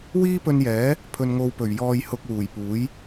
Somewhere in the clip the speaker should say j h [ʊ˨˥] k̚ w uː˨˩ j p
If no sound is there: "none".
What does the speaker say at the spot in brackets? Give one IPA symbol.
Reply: ʊ˧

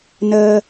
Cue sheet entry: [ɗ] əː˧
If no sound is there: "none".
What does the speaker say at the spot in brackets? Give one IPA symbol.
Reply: n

